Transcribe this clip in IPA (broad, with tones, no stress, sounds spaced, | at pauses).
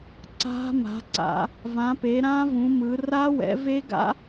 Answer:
ǀ a̤˦˥ m a̤˨˦ ǀ a̰˨˦ | v ã˨˦ p e˨˦ ɾ ã˦˥ v ũ˨˦ m ɯ˨˦ r a˦˥ w ɛ̰˨˦ v e˦˥ ɡ a̰˦˥